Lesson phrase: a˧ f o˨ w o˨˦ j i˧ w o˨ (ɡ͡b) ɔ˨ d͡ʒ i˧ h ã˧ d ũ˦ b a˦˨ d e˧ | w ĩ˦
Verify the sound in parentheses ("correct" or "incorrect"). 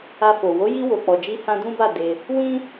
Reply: incorrect